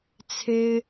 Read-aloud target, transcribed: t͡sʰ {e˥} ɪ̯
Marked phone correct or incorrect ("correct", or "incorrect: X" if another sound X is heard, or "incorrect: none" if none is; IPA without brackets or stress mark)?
correct